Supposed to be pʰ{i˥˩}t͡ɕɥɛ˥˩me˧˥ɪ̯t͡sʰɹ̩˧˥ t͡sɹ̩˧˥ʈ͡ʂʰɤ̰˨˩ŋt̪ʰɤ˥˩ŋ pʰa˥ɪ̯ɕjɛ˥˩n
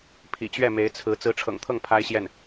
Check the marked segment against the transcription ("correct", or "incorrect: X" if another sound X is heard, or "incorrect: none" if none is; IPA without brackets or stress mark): incorrect: ḭ˨˩